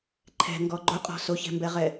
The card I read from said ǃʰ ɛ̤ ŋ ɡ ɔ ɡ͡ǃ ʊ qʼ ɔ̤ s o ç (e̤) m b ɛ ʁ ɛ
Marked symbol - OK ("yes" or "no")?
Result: no